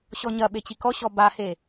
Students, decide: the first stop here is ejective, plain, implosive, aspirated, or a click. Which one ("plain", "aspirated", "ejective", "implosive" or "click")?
implosive